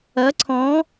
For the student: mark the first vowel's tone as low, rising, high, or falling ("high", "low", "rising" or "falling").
rising